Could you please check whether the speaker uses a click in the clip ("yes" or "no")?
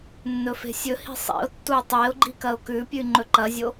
yes